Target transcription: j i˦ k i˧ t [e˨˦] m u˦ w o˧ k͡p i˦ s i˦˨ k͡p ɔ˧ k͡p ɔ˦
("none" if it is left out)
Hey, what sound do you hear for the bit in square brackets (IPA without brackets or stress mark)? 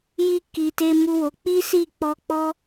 e˦